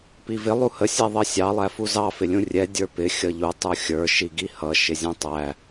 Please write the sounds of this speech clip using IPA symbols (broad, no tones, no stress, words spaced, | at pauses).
pivɪ lˠuhə sʲɛðˤʌsʲɑ lˠæfuzɑ fɪlʲũrʲɛ dʲə˞pɪ xʲʌʎu tˤuxʲə˞ ʃiɡihʌ ʃɪzʲũtˤæ